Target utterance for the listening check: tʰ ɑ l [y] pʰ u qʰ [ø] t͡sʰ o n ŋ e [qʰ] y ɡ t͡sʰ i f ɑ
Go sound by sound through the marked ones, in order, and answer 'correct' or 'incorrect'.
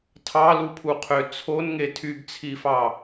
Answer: incorrect, correct, incorrect

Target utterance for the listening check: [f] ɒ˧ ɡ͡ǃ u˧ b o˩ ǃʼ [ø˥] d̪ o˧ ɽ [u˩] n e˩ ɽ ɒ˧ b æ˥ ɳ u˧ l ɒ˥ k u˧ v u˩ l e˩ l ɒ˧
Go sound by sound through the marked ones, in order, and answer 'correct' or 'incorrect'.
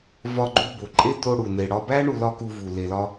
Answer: incorrect, incorrect, correct

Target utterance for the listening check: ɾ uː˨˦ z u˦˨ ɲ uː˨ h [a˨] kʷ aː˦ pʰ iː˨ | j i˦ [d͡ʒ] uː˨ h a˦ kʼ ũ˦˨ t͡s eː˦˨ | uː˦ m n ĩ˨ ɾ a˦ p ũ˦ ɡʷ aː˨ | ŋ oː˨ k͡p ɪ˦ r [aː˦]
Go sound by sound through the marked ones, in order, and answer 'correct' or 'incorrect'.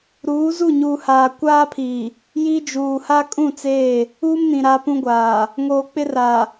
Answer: incorrect, correct, incorrect

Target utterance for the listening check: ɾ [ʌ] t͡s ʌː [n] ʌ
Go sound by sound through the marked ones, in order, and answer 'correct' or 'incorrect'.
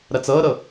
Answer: incorrect, incorrect

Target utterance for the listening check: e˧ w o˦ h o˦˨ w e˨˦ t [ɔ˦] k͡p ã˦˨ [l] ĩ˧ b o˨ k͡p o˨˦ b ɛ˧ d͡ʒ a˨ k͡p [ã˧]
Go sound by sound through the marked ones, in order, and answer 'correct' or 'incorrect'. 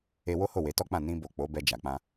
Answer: correct, incorrect, correct

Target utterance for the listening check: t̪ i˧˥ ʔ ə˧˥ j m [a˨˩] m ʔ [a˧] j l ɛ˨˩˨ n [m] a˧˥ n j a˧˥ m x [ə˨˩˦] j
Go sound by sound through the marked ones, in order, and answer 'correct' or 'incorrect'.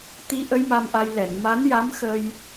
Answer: incorrect, correct, correct, incorrect

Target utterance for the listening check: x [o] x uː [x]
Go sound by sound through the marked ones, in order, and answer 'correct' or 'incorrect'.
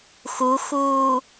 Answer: incorrect, incorrect

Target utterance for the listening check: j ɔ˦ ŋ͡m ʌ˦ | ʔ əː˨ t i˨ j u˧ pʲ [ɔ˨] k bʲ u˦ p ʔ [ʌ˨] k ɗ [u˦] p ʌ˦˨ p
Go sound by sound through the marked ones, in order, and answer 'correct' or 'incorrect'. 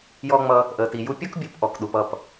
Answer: incorrect, incorrect, incorrect

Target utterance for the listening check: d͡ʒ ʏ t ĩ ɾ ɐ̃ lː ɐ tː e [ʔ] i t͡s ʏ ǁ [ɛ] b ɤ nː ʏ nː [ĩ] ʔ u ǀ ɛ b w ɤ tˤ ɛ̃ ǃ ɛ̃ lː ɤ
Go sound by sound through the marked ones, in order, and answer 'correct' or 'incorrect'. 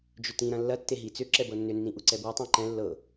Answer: incorrect, correct, correct

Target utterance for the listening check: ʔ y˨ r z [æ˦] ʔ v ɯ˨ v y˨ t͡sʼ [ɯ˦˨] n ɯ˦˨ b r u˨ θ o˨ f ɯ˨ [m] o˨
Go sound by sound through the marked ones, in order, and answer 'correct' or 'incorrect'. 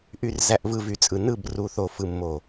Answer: incorrect, incorrect, incorrect

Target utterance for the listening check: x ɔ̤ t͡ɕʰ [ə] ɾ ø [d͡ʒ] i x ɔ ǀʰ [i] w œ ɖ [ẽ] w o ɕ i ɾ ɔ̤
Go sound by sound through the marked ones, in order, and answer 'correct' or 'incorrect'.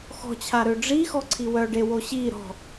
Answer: incorrect, incorrect, correct, incorrect

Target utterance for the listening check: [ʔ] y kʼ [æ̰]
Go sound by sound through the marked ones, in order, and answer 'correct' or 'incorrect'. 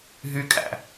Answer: incorrect, correct

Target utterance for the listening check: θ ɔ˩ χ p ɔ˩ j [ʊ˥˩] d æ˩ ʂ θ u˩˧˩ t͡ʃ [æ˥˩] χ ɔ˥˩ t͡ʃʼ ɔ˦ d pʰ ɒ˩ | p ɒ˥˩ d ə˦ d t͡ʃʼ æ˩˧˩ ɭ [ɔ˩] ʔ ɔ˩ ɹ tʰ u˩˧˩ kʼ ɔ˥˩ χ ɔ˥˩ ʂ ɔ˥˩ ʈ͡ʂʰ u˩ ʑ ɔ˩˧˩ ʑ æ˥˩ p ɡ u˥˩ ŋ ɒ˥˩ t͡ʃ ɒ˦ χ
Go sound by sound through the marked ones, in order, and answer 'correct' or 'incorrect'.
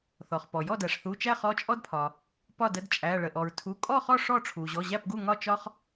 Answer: incorrect, correct, incorrect

